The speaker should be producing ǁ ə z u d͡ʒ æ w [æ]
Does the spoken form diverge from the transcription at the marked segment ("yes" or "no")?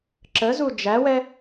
yes